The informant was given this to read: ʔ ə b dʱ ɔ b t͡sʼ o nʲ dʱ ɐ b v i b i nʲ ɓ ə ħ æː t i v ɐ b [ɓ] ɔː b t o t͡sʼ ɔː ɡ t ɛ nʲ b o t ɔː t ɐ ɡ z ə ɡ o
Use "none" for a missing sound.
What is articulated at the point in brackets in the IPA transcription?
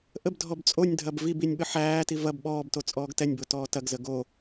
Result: ɓ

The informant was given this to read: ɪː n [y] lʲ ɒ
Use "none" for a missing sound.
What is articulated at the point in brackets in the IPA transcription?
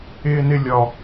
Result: ɪ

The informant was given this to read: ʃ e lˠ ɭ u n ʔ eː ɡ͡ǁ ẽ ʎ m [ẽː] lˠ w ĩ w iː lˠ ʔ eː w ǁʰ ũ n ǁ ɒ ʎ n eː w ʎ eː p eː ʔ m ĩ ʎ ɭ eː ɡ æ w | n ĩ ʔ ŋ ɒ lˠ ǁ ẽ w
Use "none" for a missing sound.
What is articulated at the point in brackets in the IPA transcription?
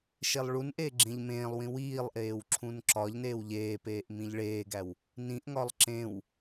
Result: ẽː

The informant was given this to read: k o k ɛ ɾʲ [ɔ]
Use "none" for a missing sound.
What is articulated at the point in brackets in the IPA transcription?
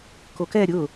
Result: ʊ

